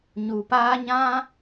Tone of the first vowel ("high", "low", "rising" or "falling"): low